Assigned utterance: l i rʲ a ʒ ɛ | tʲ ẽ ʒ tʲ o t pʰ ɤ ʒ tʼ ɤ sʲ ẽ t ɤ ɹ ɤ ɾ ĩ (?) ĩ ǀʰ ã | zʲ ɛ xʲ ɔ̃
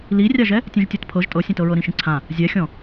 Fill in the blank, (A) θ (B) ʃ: B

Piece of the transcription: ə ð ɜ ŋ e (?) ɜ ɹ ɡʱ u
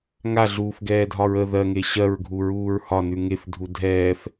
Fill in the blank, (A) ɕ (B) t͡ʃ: A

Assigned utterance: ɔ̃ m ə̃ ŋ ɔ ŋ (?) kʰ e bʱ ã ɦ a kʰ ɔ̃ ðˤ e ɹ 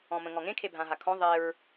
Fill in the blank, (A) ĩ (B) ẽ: B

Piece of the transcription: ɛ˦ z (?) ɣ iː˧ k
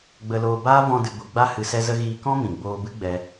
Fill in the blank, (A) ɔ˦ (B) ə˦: B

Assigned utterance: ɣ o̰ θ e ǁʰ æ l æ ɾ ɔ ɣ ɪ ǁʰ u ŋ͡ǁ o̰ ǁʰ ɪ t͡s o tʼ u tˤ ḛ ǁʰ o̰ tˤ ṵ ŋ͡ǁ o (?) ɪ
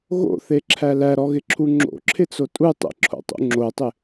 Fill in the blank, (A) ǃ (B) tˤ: B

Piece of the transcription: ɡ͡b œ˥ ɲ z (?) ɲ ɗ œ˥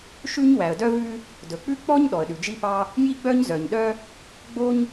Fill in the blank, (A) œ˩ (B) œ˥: A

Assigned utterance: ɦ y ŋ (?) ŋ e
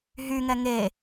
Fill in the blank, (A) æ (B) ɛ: B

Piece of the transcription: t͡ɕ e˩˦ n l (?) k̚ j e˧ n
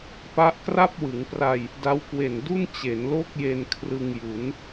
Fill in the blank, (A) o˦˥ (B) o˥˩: B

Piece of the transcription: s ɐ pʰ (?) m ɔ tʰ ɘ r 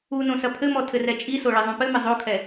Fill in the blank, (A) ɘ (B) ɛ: A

